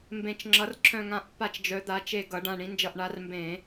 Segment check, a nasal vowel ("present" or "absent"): present